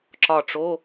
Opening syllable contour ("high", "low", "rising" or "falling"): falling